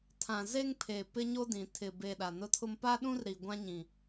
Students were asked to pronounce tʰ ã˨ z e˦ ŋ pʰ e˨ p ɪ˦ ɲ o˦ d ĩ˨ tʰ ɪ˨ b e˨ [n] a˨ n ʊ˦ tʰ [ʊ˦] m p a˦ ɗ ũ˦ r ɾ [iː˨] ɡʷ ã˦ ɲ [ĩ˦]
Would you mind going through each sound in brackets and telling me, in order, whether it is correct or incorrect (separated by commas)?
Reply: incorrect, correct, incorrect, incorrect